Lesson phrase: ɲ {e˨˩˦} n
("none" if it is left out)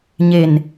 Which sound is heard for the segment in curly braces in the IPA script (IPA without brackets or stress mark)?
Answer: e˨˩